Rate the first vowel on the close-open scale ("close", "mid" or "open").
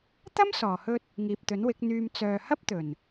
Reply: open